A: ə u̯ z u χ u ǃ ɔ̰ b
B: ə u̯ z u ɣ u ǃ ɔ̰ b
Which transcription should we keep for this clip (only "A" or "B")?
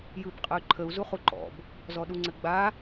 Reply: A